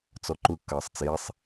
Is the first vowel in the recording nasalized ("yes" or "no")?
no